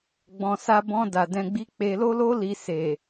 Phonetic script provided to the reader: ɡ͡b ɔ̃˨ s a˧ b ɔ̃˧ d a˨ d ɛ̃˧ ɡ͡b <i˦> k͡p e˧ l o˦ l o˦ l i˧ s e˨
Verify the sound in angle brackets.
correct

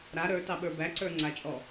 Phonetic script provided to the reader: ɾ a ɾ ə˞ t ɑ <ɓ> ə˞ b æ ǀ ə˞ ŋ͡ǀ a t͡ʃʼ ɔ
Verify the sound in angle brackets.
correct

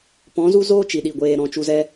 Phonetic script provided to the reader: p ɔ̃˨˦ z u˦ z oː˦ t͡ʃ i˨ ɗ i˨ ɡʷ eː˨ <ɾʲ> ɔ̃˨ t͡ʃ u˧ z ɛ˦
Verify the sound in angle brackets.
incorrect: ɾ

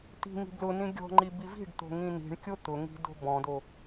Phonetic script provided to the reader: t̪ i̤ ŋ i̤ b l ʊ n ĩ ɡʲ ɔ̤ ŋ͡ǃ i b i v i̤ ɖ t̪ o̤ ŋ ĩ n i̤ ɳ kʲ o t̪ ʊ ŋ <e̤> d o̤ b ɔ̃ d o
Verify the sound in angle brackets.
incorrect: i̤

